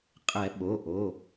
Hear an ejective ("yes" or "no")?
yes